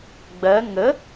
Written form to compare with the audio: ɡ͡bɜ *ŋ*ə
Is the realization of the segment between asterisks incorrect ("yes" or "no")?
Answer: no